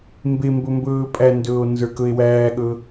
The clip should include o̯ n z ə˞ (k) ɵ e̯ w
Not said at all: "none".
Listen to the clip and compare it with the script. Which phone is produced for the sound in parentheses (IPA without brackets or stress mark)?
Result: k